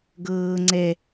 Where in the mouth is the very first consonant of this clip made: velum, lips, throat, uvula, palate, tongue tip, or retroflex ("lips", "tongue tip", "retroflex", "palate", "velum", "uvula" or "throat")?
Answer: velum